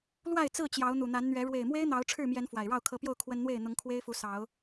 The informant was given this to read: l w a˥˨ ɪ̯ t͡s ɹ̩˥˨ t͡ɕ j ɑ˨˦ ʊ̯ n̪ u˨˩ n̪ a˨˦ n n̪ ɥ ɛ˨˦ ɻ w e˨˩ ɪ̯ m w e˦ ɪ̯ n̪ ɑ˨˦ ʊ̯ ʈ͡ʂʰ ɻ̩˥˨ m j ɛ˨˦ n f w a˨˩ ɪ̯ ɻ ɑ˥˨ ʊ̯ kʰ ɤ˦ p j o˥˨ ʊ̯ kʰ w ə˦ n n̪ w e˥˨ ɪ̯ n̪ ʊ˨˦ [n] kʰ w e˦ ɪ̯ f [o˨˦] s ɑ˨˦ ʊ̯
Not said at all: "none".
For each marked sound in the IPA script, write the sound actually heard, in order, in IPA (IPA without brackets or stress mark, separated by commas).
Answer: ŋ, u˨˦